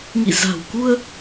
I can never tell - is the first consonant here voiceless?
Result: no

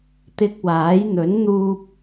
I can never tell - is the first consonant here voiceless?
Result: yes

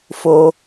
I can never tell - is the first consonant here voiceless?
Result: yes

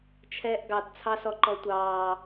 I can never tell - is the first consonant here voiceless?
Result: yes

